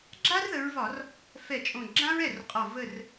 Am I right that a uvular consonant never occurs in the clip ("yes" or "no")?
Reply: no